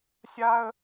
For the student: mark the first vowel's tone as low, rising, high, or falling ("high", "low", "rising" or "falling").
high